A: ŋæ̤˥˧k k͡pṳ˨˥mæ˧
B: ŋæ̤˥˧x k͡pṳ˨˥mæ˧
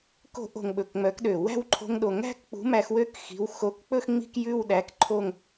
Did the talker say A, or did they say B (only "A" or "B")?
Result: A